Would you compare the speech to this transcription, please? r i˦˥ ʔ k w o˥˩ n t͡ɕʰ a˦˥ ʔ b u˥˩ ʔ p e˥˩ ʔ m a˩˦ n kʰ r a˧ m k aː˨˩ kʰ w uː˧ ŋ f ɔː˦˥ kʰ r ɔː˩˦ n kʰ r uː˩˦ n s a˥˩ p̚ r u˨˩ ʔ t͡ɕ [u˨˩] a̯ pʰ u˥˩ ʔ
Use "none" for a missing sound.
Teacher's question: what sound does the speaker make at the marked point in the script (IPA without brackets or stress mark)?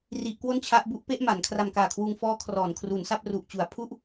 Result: u˨˩